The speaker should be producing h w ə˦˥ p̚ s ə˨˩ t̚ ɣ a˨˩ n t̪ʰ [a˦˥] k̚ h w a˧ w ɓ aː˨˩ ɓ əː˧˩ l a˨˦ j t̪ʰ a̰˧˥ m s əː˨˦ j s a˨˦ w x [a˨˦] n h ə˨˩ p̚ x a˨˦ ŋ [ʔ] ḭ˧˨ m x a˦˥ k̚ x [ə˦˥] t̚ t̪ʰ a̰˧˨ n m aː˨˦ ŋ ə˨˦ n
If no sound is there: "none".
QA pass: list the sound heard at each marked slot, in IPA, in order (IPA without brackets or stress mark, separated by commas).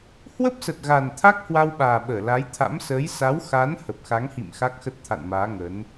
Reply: a˦˥, a˨˦, h, ə˦˥